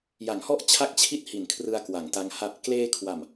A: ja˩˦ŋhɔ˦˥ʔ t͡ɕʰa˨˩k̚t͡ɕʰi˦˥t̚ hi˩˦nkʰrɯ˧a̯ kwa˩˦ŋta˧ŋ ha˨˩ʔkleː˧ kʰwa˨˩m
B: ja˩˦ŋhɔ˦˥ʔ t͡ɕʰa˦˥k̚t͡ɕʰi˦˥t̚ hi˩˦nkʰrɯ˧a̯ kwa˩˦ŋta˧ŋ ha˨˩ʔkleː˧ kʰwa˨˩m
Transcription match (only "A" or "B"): B